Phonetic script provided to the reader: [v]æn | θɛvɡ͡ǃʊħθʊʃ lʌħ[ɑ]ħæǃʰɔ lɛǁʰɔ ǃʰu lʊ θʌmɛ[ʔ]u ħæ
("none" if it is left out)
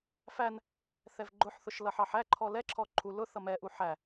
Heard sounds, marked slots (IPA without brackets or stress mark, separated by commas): f, ɑ, ʔ